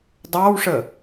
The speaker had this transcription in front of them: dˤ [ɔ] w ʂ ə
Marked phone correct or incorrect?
incorrect